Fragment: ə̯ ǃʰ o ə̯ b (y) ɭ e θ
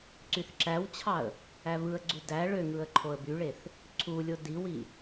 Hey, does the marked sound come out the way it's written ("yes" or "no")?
yes